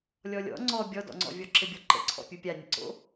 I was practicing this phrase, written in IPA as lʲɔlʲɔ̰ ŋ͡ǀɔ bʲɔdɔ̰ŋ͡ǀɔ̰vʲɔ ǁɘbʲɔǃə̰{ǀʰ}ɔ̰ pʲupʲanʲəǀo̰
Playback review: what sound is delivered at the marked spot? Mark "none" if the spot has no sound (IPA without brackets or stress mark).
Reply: ǀʰ